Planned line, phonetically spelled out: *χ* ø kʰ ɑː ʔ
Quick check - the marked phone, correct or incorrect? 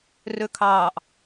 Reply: incorrect